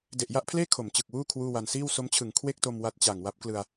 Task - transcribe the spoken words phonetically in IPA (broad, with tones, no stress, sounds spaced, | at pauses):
d e˨˩ ʔ j a˥˩ ʔ pʰ l eː˥˩ kʰ o˩˦ m t͡ɕ ɯ˨˩ k̚ w uː˥˩ kʰ w uː˥˩ w a˧ n s iː˥˩ w s o˦˥ m t͡ɕʰ ɯ˩˦ ŋ kʰ w e˥˩ k̚ t o˧ m w a˦˥ t̚ t͡ɕ a˨˩ ŋ w a˦˥ p̚ k l ɯ˧ a̯